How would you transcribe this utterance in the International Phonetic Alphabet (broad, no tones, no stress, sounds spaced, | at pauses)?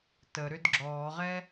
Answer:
t ə ɾ ʏ d ɡ͡ǁ ɔː ʁ ɛ